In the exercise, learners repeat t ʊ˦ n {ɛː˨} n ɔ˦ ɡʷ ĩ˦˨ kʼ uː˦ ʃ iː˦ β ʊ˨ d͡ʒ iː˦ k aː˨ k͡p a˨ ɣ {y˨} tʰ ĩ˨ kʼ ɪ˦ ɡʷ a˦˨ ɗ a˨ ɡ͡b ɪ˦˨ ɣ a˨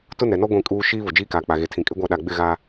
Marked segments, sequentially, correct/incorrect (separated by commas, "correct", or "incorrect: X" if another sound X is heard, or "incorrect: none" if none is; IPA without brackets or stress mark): incorrect: ɛ˨, incorrect: e˨